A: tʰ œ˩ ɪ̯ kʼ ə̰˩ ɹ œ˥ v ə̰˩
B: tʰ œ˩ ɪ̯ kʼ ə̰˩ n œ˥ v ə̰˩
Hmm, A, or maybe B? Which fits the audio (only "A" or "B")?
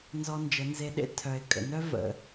B